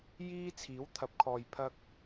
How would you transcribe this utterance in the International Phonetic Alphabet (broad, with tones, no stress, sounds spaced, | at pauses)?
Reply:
j iː˥ t͡sʰ iː˨˥ w t̪ʰ ɐ˨˥ p̚ kʰ ɔː˨ j pʰ ɐ˧ k̚